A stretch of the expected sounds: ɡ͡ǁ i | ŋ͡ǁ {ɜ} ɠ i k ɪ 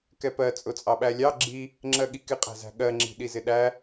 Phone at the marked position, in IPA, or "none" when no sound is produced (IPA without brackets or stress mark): ɜ